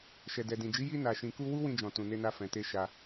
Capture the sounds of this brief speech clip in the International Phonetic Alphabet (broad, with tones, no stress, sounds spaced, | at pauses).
ʃ ɛ˨ d ɛ˨ d ĩ˨ d͡ʒ i˨˦ j i˧ n a˨ ʃ ĩ˨ k u˧ w u˦ w ĩ˧ d͡ʒ ɔ̃˨ t ũ˨ n e˧ n a˧ f ɛ̃˨ t e˧ ʃ a˧